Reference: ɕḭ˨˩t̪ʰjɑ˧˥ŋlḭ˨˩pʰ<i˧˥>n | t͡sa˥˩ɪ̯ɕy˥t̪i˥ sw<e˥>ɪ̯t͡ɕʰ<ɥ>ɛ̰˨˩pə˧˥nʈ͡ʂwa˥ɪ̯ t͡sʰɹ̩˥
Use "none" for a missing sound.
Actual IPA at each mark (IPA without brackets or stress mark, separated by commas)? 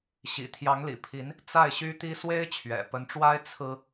i˧˥, e˥, ɥ